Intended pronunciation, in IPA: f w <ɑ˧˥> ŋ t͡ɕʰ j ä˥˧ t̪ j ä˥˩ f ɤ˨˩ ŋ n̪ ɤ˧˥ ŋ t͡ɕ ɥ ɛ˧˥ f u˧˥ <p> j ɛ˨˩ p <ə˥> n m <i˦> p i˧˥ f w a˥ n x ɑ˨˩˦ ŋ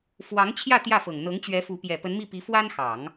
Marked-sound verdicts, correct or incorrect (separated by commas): correct, correct, incorrect, incorrect